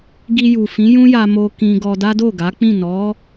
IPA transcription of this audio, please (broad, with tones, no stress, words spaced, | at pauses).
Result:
ɡi˧ju˨fĩ˨˦ jũ˦ja˧mo˧ kĩ˧ɡɔ˧da˦ do˦˨ɡa˨˦k͡pĩ˦˨ nɔ˨˦